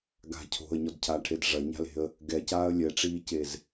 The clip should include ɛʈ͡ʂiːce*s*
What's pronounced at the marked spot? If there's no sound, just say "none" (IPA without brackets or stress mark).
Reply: z